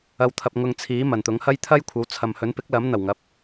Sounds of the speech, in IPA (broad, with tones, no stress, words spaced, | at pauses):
ɐ˧w t̪ʰɐ˨p̚ŋʊ˨ŋ t͡sʰiː˨˥ mɐ˨˩nt̪ʊ˨˥ŋhɐ˥j t̪ʰɐ˥jkʷʰɐ˨˥w t͡sʰɐ˨mhɵ˨˥npɪ˨˥k̚lɐ˨˥m n̪ɐ˨˩wŋɐ˨p̚